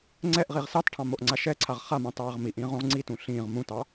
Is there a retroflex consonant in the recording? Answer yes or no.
yes